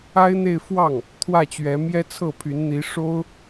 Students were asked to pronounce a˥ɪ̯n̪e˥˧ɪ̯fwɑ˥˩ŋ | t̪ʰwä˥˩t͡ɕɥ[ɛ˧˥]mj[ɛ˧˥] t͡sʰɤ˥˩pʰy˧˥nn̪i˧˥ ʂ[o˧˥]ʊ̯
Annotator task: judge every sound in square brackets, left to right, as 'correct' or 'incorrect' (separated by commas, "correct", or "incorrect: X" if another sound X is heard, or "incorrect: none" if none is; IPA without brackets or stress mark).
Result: correct, incorrect: ɛ˥, incorrect: o˥